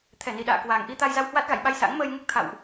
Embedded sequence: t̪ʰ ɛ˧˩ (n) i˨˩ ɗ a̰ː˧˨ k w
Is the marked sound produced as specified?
yes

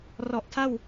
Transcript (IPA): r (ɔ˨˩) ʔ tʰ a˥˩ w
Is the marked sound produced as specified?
yes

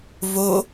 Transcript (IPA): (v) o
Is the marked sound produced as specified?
yes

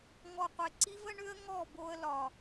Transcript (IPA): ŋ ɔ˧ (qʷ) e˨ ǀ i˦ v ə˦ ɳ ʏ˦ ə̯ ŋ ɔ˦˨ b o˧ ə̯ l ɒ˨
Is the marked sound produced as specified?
yes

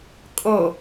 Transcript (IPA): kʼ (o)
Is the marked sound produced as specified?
yes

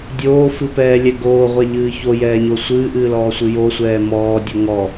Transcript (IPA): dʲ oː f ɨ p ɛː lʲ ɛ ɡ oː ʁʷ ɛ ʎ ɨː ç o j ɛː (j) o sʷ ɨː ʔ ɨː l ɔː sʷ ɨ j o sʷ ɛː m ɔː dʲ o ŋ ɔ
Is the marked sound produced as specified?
no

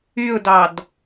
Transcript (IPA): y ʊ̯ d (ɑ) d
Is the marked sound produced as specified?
yes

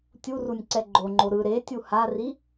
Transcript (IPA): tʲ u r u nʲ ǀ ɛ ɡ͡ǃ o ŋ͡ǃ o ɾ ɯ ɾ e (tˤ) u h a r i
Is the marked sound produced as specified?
no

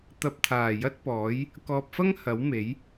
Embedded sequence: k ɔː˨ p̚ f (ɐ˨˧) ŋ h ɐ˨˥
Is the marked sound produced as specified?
no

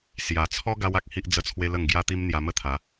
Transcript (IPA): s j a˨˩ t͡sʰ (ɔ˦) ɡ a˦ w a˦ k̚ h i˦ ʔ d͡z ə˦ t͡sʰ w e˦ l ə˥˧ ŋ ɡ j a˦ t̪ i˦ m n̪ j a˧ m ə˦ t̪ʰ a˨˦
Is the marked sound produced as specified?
yes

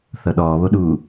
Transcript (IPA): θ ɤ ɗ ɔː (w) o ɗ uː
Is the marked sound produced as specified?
no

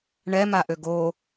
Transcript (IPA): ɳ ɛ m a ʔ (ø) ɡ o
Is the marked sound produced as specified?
yes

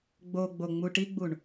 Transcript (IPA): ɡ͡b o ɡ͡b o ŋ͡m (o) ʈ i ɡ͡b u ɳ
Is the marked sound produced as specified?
no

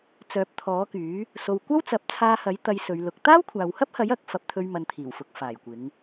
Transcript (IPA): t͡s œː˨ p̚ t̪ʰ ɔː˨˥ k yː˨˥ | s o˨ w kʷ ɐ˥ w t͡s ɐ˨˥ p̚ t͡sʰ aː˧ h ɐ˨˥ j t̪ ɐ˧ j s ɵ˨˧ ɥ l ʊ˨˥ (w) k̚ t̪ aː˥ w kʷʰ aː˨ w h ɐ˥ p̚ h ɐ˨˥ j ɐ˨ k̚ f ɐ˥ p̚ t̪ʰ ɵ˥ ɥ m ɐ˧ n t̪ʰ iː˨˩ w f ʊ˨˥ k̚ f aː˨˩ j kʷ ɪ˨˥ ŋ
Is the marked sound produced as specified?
no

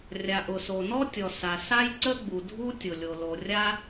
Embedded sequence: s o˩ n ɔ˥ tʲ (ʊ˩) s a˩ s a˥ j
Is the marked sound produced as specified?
no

